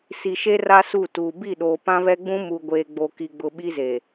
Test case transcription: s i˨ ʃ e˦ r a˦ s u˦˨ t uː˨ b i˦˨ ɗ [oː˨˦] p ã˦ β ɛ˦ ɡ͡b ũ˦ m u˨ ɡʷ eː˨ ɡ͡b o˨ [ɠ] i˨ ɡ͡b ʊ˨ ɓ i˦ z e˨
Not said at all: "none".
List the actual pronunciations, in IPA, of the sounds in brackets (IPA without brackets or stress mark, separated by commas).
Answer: oː˨, k